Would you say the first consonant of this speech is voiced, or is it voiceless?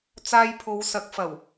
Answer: voiceless